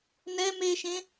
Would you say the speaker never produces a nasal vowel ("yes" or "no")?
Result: no